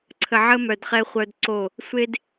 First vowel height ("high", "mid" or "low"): mid